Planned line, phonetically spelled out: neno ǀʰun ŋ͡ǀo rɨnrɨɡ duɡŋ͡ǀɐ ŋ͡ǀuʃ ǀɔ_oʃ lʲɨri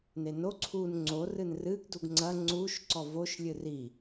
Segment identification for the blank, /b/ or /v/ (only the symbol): v